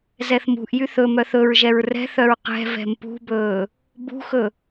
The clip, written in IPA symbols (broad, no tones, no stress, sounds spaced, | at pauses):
z ɛ θ m ṳ ʔ j y θ ɵ m œ θ ɵ ɹ ʒ ɛ ɹ r ɛ̤ θ œ ɹ q ɛ̤ v ɛ̤ m p ṳ b ɵː | b ṳ x ɵ